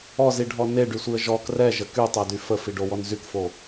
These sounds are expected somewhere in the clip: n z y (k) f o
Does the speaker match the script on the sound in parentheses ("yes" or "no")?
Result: yes